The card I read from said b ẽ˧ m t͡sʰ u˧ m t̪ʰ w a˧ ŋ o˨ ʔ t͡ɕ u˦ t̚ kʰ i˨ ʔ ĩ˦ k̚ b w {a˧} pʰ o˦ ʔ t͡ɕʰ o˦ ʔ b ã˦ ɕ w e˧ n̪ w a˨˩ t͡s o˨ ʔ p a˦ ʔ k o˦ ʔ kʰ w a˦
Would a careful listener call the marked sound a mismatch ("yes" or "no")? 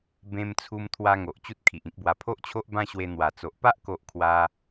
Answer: no